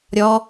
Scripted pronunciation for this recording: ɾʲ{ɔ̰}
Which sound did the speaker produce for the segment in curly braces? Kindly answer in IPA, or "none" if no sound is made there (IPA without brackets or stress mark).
ɔ